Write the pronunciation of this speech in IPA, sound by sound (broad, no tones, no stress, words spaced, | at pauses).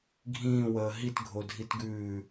ɡʱĩːwəː ɦitɡʱodʱitɡʉː